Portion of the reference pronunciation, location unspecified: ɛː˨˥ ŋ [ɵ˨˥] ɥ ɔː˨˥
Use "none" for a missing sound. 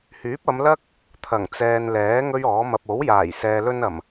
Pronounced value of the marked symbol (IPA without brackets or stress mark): ɵ˥